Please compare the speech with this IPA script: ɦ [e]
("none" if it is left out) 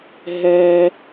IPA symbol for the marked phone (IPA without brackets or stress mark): ɛ